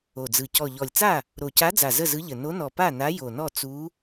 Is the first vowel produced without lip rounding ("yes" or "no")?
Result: no